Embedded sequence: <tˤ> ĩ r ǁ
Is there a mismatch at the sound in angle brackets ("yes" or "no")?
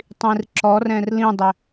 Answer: no